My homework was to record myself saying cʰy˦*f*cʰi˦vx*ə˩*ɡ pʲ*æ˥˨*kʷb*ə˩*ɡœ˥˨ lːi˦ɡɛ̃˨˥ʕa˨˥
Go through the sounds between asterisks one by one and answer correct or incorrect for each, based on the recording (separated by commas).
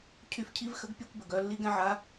correct, incorrect, incorrect, correct